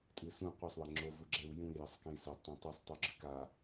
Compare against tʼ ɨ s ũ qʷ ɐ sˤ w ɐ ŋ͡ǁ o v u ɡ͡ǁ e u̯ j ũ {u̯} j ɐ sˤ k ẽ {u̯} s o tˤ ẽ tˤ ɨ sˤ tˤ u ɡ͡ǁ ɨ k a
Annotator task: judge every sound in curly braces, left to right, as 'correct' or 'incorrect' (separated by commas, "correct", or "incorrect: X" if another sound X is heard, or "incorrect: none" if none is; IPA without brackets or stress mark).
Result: incorrect: i̯, incorrect: i̯